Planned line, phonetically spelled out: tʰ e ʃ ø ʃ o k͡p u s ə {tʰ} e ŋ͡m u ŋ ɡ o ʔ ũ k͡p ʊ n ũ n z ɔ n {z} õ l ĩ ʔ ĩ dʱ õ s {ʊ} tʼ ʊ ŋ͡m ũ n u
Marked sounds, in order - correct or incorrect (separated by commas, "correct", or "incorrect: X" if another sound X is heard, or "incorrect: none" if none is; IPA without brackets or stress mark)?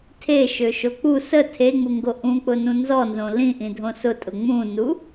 correct, correct, correct